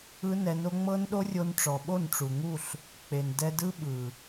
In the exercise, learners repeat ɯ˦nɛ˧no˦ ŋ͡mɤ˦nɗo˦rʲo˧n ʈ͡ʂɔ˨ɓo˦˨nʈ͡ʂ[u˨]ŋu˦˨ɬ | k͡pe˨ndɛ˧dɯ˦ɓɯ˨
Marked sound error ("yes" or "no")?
no